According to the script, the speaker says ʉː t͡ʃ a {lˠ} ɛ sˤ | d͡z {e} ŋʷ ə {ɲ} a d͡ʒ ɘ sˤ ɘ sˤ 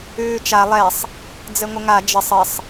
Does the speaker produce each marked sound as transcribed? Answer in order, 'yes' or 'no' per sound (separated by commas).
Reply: yes, no, no